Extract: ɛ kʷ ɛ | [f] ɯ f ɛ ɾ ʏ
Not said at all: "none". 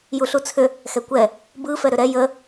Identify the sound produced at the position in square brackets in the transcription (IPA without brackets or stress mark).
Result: b